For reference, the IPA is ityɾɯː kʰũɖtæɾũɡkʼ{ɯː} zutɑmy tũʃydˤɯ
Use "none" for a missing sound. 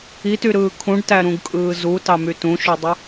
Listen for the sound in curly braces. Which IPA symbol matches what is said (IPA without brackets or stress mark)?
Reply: ɯː